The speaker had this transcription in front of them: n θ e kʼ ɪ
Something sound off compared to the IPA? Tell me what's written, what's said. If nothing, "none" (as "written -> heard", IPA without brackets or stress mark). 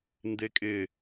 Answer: θ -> d